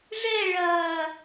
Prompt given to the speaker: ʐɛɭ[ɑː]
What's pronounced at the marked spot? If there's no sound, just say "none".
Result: ɐː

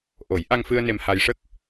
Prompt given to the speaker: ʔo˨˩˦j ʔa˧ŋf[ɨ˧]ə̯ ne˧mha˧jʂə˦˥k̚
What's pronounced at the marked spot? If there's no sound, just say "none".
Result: ɨ˧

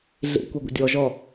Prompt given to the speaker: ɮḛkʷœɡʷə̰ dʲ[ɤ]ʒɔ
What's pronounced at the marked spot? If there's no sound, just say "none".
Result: ɔ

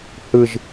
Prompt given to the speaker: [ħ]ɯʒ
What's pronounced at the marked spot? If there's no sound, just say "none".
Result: h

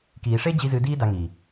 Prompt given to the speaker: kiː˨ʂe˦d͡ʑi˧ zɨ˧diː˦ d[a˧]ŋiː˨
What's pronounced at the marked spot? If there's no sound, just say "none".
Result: a˧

